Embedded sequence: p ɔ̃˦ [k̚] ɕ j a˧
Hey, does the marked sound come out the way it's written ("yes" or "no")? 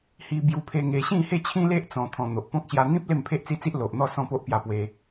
yes